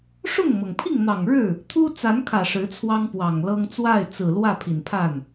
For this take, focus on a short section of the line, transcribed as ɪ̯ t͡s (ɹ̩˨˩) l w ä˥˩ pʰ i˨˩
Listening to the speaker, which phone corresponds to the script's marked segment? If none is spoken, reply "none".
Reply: ɹ̩˨˩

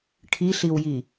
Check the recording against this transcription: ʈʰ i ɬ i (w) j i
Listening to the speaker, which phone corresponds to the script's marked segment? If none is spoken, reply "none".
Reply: w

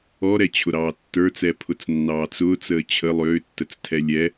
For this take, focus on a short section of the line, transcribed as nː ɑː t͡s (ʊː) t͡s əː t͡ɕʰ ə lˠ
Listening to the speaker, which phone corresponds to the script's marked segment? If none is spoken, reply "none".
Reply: ʊː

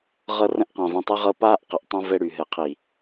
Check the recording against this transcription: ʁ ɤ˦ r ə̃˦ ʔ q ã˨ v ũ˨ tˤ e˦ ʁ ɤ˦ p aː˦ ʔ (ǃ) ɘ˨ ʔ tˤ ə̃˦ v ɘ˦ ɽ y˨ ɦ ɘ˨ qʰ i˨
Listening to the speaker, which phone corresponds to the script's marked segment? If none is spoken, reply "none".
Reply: q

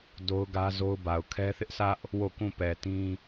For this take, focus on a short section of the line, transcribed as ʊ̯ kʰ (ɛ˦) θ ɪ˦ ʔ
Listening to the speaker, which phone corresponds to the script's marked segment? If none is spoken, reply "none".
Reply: ɛ˦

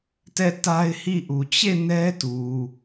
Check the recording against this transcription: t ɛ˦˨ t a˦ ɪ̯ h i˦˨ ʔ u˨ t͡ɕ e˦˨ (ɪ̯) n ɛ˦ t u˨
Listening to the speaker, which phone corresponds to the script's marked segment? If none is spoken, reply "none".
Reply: none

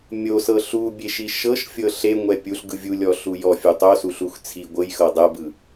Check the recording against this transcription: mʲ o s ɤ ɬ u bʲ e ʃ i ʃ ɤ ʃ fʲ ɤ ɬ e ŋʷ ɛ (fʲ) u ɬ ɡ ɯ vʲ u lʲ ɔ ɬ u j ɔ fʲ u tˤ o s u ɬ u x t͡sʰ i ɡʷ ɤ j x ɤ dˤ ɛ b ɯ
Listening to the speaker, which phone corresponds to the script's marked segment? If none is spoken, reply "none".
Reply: pʲ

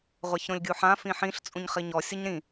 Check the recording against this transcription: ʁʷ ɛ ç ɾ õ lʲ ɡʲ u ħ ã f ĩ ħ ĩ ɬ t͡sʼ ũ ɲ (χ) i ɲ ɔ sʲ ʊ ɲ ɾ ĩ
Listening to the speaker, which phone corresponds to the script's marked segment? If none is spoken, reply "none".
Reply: χ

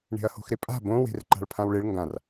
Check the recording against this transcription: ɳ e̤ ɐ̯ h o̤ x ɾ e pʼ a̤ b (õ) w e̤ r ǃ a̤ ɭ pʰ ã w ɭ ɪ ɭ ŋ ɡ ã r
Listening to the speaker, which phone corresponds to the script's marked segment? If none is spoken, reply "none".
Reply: õ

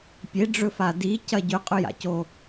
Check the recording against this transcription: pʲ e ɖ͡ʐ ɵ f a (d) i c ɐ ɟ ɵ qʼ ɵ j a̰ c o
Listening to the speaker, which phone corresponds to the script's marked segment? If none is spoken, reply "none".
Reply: d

